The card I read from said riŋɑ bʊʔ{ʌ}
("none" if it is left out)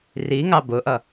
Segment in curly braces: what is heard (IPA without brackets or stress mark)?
ʌ